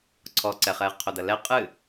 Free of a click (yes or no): no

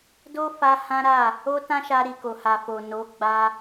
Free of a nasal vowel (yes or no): no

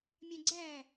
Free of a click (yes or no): no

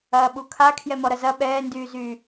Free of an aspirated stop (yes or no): no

